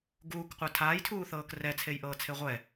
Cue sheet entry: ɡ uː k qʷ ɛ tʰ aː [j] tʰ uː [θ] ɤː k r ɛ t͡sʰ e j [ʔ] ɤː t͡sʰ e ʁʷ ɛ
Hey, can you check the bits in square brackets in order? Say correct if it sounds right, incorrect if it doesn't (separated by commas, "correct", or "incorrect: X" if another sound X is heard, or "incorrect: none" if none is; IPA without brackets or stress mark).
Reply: correct, correct, correct